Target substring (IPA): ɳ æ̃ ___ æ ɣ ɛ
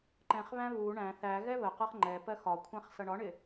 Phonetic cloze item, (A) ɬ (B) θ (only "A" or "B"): B